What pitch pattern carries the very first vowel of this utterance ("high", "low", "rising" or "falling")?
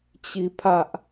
falling